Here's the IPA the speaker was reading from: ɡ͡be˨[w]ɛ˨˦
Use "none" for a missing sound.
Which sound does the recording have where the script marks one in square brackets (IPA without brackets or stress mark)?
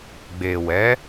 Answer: w